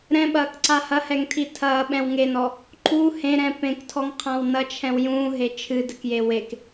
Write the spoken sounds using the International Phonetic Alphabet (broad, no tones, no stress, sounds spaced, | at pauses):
ɾ ɛ̃ ɓ ɐː k ǀ a h ɐ h ɛ ŋ tʰ i tʰ ɐː ɓ ɛ̃ w ŋ e n ɔ | ǃ u h ẽ ɾ ɛ̃ p ẽ k tʰ ɔ ŋ qʰ ã w n ɐ t͡ʃʰ ɛ̃ w j ũː ɦ e t͡ʃʰ ɨ d ɘ k j e w e k